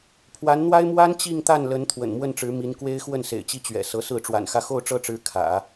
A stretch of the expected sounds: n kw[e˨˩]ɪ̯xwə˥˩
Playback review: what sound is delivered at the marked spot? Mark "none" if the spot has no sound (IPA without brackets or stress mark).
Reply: e˥